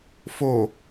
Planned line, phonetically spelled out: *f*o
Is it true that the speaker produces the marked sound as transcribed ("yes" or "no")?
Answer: yes